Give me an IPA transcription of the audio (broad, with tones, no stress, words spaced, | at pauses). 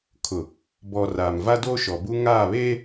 kʰʊ˨ | bɔ˨ raː˨m va˦do˦ʃɔ˨ bu˦ŋaː˦˨βeː˦